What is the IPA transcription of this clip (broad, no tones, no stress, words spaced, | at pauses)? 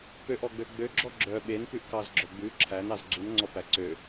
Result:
pøʔɔɡ͡bø ɡ͡bøɡ͡ǁɔ ɡ͡ǁœ ɓenpʉʔkɑzɡ͡ǁœ ɡ͡bʉ ǁʰænɑz ɡ͡ǀunŋ͡ǀɔpæ ǀø